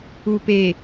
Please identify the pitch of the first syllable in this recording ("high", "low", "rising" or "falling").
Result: low